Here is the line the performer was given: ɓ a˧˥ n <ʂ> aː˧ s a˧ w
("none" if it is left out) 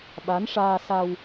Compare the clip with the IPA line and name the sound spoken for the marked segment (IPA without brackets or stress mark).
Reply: ʂ